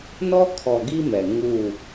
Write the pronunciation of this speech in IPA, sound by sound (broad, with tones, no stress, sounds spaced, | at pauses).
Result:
n ɔ˦ kʰ ɔ˨ ɡ i˦ m ɛ˨ ŋ uː˦˨